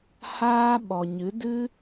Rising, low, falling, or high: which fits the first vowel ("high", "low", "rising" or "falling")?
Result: high